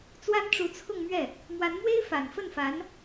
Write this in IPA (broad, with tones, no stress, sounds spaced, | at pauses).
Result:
t͡s w a˥ n ʈ͡ʂ u˧˥ t͡sʰ ʊ˥˧ ŋ m ɥ ɛ˥˩ | m w a˧˥ n m w e˥ ɪ̯ f a˨˩ n f ə˥˩ n f a˧˥ n